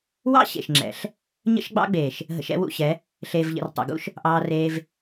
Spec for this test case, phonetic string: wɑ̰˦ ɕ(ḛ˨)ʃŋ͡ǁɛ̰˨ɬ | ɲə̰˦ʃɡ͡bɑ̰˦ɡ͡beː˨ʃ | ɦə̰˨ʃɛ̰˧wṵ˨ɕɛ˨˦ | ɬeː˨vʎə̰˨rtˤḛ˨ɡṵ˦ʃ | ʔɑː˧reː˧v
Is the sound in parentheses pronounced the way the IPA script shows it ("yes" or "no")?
yes